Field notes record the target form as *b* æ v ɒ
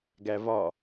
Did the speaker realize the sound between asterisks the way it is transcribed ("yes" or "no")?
no